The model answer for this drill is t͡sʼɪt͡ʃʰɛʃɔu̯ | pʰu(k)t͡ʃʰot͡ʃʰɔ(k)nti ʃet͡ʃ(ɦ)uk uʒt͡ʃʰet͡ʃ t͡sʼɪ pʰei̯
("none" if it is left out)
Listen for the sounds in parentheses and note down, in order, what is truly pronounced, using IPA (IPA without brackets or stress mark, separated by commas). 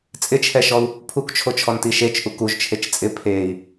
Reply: k, none, ʔ